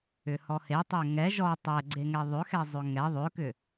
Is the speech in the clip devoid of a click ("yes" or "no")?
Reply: no